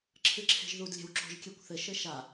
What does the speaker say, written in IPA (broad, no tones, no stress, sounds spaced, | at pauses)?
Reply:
ǁʰ ɨ ǁʰ e̤ ʒ ð u d lʲ e̤ w ǁ o̤ ʒ kʲ e kʷ θ ɘ ʃ ɘ ʃ a